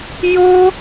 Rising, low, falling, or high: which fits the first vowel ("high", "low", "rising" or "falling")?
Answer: high